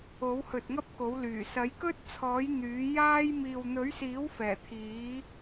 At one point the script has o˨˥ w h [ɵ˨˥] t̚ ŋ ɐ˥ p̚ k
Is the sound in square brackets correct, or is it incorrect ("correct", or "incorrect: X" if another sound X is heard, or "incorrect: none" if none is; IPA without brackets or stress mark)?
incorrect: ɵ˨